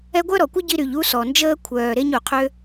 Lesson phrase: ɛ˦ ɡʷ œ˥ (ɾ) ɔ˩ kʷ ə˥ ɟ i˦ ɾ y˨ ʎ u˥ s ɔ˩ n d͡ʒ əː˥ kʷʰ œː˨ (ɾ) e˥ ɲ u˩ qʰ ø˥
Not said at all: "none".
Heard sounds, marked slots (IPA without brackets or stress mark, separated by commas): ɾ, ɾ